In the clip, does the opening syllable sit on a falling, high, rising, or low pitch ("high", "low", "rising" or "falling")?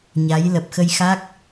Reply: rising